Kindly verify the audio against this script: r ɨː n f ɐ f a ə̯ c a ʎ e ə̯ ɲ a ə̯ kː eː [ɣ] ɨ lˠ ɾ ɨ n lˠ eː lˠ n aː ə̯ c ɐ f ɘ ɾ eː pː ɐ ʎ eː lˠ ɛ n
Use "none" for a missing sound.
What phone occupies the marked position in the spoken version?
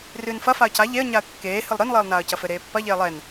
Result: h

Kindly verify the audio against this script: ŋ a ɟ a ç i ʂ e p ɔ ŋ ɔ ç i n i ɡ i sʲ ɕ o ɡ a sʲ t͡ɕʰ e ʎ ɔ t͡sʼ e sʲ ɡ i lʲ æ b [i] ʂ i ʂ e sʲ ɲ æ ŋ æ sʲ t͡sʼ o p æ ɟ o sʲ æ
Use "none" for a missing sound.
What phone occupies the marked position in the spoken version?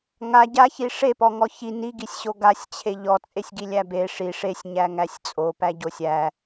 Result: e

